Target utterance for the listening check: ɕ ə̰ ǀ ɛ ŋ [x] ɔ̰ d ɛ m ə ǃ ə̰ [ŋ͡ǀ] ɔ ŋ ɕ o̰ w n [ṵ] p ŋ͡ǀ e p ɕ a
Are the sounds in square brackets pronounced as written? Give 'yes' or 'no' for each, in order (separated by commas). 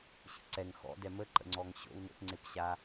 yes, yes, no